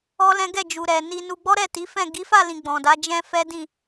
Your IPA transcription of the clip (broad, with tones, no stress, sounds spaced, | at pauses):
ɔ˦ l ɛ̃˦ ɡ ɛ˦˨ d͡ʒ u˨ ɾ ɛ˨ n i˧ n u˧ ɡ͡b ɔ˦ ɾ ɛ˦˨ t i˨˦ f ɛ̃˦˨ ɡ i˨˦ f a˦˨ l ĩ˨ ɡ͡b ɔ̃˨ d a˨˦ d͡ʒ ɛ̃˦ f ɛ˦ d ĩ˦˨